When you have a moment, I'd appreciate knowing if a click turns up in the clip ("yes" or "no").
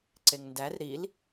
yes